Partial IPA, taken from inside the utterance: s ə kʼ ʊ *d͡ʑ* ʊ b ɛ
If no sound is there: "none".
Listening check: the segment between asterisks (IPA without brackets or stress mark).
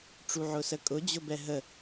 d͡ʑ